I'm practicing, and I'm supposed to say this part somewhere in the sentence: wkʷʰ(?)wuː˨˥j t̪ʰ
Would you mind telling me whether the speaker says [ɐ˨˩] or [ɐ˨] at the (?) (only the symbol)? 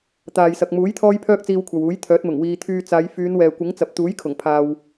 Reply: ɐ˨